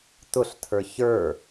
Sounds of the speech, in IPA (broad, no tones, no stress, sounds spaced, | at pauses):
t ʊ ɬ tʰ ə˞ ç ə˞